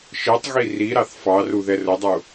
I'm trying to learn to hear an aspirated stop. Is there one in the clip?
no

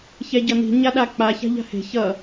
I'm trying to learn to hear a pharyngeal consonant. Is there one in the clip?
no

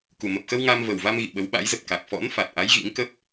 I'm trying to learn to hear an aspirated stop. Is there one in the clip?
no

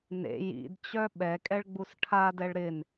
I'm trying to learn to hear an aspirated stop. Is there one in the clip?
yes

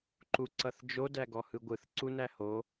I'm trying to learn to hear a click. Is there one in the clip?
yes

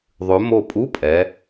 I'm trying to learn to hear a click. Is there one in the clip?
no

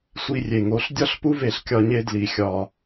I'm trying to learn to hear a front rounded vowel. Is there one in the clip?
no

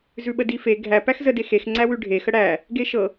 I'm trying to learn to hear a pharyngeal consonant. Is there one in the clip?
no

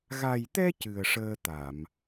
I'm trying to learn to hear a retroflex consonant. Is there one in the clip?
yes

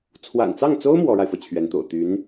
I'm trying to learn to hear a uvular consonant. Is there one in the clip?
no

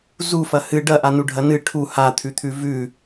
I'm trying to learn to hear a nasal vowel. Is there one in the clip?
no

